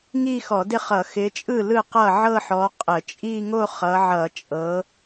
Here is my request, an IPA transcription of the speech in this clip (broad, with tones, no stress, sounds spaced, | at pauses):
ŋ i˥˧ x ɔ˧˩˧ d ɪ˥˩ χ ʌ˧˩˧ x ɪ˨˦ t͡ʃʼ ɯ˥˩ l ɯ˥˩ q ʌ˥˩ ʕ ɤ˥˧ ħ ɔ˨˦ qʼ ə˧˩˧ t͡ʃʼ i˥˧ ŋ o˥˧ χ ʌ˨˦ ʕ ʌ˧˩˧ t͡ʃʼ ɤ˨˦